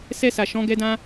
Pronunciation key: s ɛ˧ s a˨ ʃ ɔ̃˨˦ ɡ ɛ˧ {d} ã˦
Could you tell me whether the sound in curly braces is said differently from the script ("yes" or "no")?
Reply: no